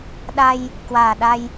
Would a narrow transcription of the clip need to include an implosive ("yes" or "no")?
yes